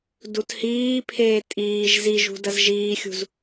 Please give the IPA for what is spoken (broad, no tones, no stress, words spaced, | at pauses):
duthiːpʰeː tʼiːʒ ziʒṳ dɐzʒiːxʲṳz